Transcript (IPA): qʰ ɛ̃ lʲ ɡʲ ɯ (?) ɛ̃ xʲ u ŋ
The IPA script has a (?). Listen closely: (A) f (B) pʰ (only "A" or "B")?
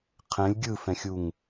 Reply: A